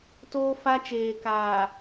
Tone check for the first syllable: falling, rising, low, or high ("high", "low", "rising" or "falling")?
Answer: high